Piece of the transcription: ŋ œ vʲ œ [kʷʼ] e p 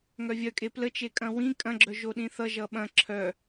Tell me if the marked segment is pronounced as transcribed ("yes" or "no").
no